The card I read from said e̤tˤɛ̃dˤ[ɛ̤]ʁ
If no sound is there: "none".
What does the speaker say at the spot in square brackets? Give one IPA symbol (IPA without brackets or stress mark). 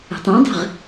ɛ̤